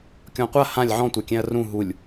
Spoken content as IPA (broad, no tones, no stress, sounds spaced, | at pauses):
kʲ ɔ̃ qʷ a h ã lʲ ʕ ɔ̃ tʷ a kʲ ɛ̃ ɐ̯ r ũ ɦ u lʲ